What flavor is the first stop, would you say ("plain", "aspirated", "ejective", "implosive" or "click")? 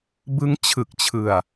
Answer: plain